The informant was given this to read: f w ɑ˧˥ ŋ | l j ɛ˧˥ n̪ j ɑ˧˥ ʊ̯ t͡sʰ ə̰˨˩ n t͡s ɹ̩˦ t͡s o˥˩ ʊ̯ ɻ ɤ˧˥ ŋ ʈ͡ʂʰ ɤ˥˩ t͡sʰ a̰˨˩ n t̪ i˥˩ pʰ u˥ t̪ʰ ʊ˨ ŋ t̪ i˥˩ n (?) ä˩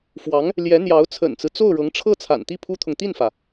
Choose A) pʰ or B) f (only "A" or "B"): B